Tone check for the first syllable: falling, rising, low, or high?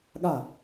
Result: falling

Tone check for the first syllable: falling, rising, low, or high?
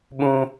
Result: high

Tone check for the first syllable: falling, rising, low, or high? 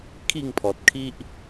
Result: falling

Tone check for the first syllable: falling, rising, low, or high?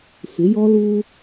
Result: rising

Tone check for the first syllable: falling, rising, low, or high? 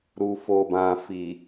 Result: low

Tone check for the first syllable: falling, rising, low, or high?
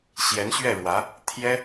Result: rising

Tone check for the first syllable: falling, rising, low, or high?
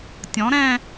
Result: rising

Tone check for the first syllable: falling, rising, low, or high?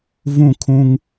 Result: falling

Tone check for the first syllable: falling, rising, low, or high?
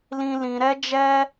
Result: high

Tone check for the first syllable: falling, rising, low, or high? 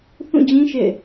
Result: falling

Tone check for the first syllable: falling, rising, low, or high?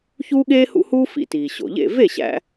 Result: high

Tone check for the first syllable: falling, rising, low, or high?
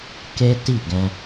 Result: high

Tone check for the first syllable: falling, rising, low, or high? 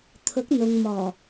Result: rising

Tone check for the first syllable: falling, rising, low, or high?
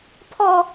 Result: high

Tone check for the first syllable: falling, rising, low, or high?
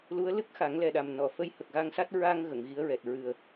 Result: rising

